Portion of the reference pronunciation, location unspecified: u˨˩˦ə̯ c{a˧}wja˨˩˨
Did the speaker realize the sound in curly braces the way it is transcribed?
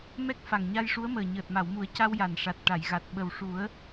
yes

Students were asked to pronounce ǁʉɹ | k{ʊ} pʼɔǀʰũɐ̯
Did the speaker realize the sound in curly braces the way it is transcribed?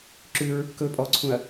no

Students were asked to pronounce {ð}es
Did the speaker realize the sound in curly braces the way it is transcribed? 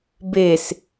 no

